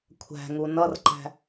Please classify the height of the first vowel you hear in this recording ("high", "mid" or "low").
low